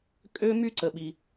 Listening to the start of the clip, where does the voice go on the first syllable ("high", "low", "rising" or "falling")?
high